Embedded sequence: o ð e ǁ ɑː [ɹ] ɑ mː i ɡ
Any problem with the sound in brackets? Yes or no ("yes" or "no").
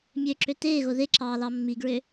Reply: yes